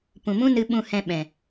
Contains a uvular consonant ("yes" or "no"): no